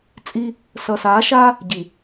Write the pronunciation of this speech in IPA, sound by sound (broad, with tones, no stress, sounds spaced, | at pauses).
t͡sʼ i˦ | s ʌː˨ s aː˨˦ ʃ aː˦ | ɟ i˨